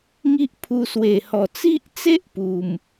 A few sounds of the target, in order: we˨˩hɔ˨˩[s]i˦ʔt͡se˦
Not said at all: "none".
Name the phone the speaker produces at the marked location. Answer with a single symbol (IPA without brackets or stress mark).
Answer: t͡s